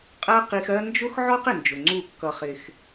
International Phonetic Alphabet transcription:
qʼ ɜ˦ q i˧ x ɜ˦ n d͡ʒ ʊ˦ x ʕ ɔ˦ q ɪ˨ n d͡ʒ ʊ˨ ŋ͡ǀ u˦˨ kː ʌ˧ χ ɪ˧ x

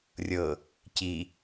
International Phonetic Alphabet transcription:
rʲ ɤ | c i

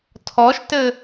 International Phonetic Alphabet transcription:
tʰ ɔ ʃ t ɘ

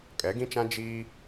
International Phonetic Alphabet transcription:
kʼ ɛ˨˦ ɡ ĩ˦ t͡ʃ ã˦ d͡ʒ iː˦

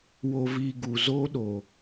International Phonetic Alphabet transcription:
w o˧ v iː˧ ɡ u˨ z oː˦ ɗ o˨

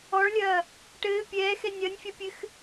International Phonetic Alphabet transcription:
ɔ ɭ lʲ ɐː | ʈ ɘː pʲ ɛː x ɛ nʲ ɐ nʲ fʲ ɐ pʲ ɘ x

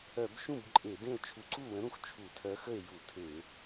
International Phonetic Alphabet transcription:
œ˧˩˧ b ʃ ũ˥˨ b ǃʼ e˧˩˧ d ẽ˥˨ o̯ t͡ʃʰ u˧˩˧ ǀ u˥˨ w ə̃˨˥ ɾ ũ˨˥ x t͡ʃʰ u˧˩˧ tʰ œ˨˥ x ə˥˨ e̯ j u˧˩˧ tʰ e˧˩˧

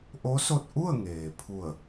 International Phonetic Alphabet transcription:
ʔ o˧˥ s o˧ t̚ ʔ u˥˨ ə̯ ŋ eː˩ pʰ u˧˩ ə̯

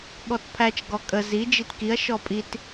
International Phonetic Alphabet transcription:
ɠ ɔ t pʰ æ t͡ʃ ɡ ɔ kʼ ə z i d͡ʒ i t k i ɐ̯ ʃ ɔ pʼ i t

